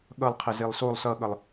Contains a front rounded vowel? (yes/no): no